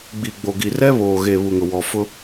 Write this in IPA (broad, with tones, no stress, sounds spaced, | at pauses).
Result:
ɡ͡b i˨ ɡ͡b o˨ ɡ i˨ r ɛ˦ β oː˨ ɣ e˨ β u˨ ŋ ʊ˨ w ɔ˨ f ʊ˦